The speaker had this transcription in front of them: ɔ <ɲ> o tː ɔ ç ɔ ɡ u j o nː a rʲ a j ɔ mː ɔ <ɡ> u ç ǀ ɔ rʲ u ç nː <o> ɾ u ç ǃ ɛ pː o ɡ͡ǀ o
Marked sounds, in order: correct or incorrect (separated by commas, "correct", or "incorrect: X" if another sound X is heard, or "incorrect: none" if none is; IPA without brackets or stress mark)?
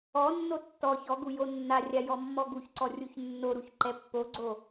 incorrect: nː, correct, correct